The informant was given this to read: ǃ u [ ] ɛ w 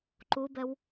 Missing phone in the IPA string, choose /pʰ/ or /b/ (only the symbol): b